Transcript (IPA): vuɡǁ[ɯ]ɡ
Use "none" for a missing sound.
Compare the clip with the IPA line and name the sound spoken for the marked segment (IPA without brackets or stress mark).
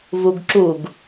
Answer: u